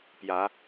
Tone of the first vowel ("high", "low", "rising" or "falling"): rising